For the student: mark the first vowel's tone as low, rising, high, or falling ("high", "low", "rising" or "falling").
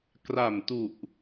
low